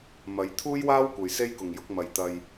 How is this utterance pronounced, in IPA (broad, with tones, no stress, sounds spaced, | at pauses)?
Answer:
m ɐ˨˧ j t̪ʰ uː˥ j w aː˥ w kʷ ɐ˨ j s e˥ j k ʊ˨ ŋ j ʊ˨˥ k̚ m ɐ˨ j t̪ ɐ˧ j